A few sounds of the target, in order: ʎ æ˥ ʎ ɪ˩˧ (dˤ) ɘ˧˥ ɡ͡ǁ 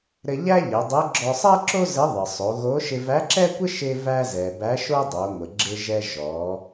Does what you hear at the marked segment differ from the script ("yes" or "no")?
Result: no